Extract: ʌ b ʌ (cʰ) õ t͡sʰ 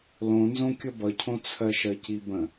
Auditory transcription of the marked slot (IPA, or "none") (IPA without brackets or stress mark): cʰ